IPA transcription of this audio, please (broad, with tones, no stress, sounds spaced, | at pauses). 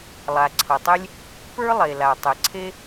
lˠ a˩ ǀʰ ʌ˩ tˤ e˥ lʲ | p ə˞˥ lˠ e˩ l a˩ tˤ ɛ˩ ǀʰ e˥